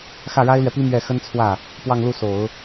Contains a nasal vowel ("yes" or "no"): no